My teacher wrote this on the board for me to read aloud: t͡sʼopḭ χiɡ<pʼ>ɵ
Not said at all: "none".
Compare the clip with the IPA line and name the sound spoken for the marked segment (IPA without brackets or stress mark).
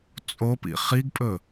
pʼ